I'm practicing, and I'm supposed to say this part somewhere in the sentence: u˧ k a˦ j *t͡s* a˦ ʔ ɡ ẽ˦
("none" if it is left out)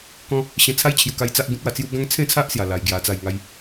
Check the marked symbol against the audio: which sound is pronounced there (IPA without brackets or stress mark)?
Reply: t͡s